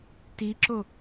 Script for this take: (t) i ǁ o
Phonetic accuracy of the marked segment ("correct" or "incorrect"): correct